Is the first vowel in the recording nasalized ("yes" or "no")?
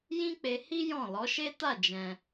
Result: yes